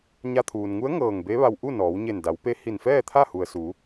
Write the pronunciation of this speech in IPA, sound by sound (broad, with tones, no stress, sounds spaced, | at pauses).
ɲ a˧ t̪ʰ uː˩ n ŋ u˧˥ ə̯ ŋ ɤː˧˩ ŋ b e˧˥ ʋ a˧ w ʔ u˥˨ n ɔː˩˧ w ɲ e˧˩ n d a˩˧ w p e˧˥ h i˧˩ n f ɛː˥˨ t̪ʰ a˥˨ h u˩ ə̯ s u˩˧